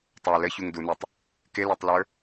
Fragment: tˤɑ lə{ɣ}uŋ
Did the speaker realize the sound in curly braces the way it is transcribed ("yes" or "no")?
no